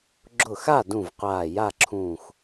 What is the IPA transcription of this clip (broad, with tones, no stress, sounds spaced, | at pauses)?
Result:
ɡ͡ǁ ʊ˧˩ x a˥˨ d ũ˧˩ v qʷ aː˧˩ j a˥˨ ǁʰ ũː˧˩ x